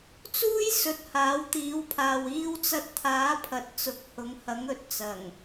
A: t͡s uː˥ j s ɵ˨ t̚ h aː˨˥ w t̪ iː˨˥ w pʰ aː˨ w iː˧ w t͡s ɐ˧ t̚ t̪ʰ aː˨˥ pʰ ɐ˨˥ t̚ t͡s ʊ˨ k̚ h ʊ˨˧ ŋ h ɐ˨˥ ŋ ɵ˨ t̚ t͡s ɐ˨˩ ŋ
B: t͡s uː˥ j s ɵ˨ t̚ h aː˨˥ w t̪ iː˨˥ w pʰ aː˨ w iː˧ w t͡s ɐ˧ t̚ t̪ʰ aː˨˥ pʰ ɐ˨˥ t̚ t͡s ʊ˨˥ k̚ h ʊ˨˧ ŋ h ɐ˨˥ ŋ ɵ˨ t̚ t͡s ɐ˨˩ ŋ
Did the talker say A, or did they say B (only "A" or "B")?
B